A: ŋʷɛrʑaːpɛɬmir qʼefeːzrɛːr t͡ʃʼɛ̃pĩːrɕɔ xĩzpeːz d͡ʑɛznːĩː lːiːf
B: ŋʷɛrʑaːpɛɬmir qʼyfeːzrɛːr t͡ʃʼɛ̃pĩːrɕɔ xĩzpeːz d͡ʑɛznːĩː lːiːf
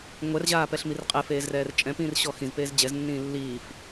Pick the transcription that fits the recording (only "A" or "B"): A